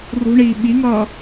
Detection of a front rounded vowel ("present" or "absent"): absent